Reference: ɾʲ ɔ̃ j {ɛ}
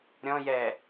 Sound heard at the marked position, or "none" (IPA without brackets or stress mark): ɛ